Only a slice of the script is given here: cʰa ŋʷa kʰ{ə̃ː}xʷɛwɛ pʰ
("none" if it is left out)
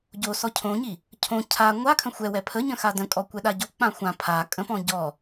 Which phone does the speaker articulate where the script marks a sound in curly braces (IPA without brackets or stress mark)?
ə̃